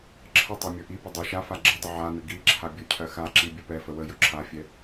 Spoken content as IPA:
ǁʰ ə tˤ ɛ mʲ ɵ ʔ i p ə dˤ ɵ ʃ a f a ɡ͡ǁ ə dˤ ə ʕ a n ə ɡ i ǁʰ a bʲ ɵ cʰ ɜ x a ǁ i bʲ ɵ p ɛ f ə w ə j ɵ ǁʰ a fʲ ɛ

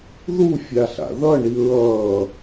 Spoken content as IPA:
ð u fʲ a ɬ a̰ ð ʌ ɳ i ɹ ʌː

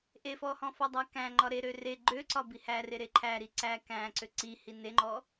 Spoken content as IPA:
ʔ e f ɔ h ɔ̃ f ɔ dˤ æ k æ̃ ŋ͡ǃ ɒ ɾ e ɾ ø r e ɡ͡ǃ ø ǀ ɒ b i h æ r e ɾ e ǃʰ æ ɾ i ǀ æ k æ̃ ǀ ø ǀ i h i n e ŋ͡ǃ ɔ

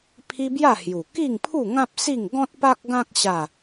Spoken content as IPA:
pʰ i˦ b j a˥˧ h j u˨˩ k i˥˧ ŋ pʰ u˥˧ ŋ ã˦ p̚ s i˥˧ ŋ ɡ ɔ̃˦ t̚ p a˦ k̚ ɡ ã˦ k̚ ɕ a˥˧

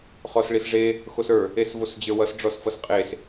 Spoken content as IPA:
χ ɔ s ɭ i s ʐ e | x o s ə˞ | e s v o s d͡ʑ ə˞ w ʌ s ɖ͡ʐ ɔ s f ʌ s qʼ e s

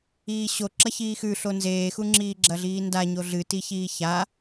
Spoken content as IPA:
iː ɕ o ǁ ɐ ç iː x ʉ ɬ o n z eː x u ŋ͡ǁ iː ɡ͡ǁ ɐ ɮ iː n d a ɲ o ɮ ɨ t i ç iː ç a

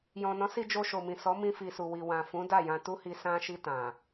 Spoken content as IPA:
j ɔ̃˨ n ɔ̃˨˦ s i˧ d͡ʒ o˧ ʃ o˨ m ĩ˨ s ɔ˨˦ m ĩ˧ f i˨ s u˨ w i˨ w ã˨ f ũ˨˦ d a˦˨ j ã˧ t u˦ h i˧ s ã˧ ʃ i˧ t ã˨

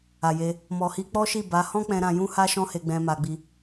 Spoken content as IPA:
a˨ j e˧ | m ɔ˨ h i˧ k͡p ɔ˦ ʃ i˦˨ b a˨˦ h ɔ̃˦ k͡p ɛ̃˧ ɾ ã˧ j ũ˦ h a˦ ʃ ɔ̃˦ h e˧ ɡ͡b ɛ̃˧ m a˧ ɡ͡b i˧

